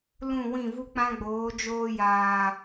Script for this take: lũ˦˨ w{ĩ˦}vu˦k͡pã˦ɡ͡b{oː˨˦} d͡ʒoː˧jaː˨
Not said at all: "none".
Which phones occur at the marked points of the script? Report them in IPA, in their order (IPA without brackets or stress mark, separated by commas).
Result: ĩ˦˨, oː˨˦